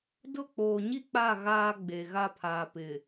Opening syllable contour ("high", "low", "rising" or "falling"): falling